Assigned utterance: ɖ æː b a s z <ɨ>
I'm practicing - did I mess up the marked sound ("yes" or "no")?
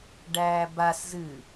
no